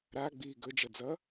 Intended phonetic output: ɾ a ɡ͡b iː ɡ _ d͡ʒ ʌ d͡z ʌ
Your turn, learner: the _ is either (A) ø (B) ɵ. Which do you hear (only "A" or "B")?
B